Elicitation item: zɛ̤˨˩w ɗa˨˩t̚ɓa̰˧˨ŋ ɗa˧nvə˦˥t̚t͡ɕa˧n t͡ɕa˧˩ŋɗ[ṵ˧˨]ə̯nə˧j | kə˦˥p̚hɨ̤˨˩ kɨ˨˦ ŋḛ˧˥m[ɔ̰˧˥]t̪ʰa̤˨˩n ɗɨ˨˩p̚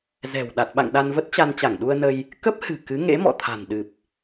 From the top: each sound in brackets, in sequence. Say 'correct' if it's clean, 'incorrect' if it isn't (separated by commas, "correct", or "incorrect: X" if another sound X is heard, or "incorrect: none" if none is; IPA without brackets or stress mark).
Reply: incorrect: u˧, incorrect: ɔ̰˧˨